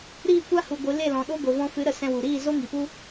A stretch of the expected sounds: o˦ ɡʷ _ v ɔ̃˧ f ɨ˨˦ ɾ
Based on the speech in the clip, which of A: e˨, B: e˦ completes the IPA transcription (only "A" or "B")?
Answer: A